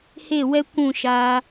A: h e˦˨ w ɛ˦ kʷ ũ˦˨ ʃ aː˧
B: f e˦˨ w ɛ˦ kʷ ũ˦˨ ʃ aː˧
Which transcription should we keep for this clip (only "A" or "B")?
A